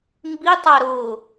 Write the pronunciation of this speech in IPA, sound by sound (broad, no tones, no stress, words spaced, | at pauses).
mbitˤa ɾʊ